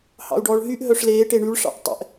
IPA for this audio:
hɑ̰u̯ɖɔːɭɦyʔ ɦœʂleː ʈeɳyɭ ʂɑ̰ʔtˤɛ̰ʔ

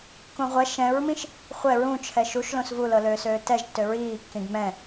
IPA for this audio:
kũʁʷɛ ʃɛ̃ɹmĩʃ | χʷɛ ɹũt͡ʃʰɛ ʃuʃlõs vulɤløːsøː tɛʒtːø ɹiːkːĩɡ mɛ̃

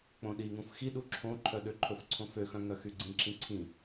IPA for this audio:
k͡põɗiŋũf xiɗu ǁʰõǃʰœ ɗøǃʰɵfǀʰõ føxœ̃ ŋœxyɡ͡ǀĩǁĩ ǀʰĩ

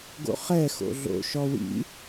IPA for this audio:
ɡo̰χɛ xo̰ɮo̰ ʃɔwḭ

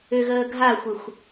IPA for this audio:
ʏɣəː ɡʱaxʷɪxʷ

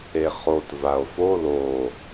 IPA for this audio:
eχot vao̯fo lo

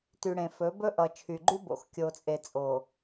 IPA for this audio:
ty˨ɽẽ˨fɵ˨˦ bɵ˦ʔʌ˨ t͡ʃʰy˨ɡ͡ǃy˦bo̰˨x kʲo˨t͡sʼe˨t͡sʼo˨

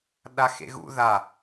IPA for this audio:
ɗaxḛɣṵ ða

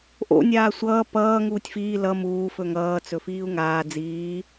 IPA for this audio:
ʔo̰ nʲaːsʷʌː pʌː ŋuːtʲfiː lʌ muː fɵŋʌː t͡sɵfiːu̯ŋaː d͡ziː

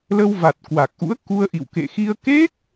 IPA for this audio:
lə˧wva˨˩t̚ kwa˨˩k̚ʔṵ˧˥ə̯ku˧ə̯ʔḭ˧˨w kḛ˧˨xi˧ə̯ ke˦˥k̚

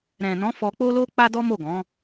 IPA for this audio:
ɾɛ̃˨nɔ̃˨˦ fɔ˧k͡po˦lo˦ k͡pa˦dɔ˦ mo˦˨ɡɔ̃˨˦

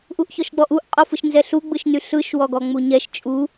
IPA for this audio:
ʔuʔçɔʃɡ͡bɔʔuʔ qʼɔfɯʃnzɛɬu ɡ͡bɯʃnyɬɯʃ wɔɡɔŋ͡muɲɛʃ t͡ʃʼu

